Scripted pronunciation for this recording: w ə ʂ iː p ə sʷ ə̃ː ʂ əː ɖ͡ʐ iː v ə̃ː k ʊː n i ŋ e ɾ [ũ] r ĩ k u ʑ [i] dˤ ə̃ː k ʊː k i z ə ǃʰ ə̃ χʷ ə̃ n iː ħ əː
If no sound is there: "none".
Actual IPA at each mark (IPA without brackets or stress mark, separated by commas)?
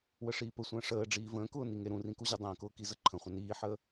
ũ, e